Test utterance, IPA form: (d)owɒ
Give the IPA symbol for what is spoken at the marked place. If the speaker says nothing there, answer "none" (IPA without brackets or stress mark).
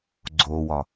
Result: ɡ͡ǀ